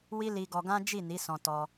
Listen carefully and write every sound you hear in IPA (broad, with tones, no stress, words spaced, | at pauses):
wi˦li˧ɡɔ˧ɡã˦ d͡ʒi˦˨ni˨˦ sɔ̃˧tɔ˧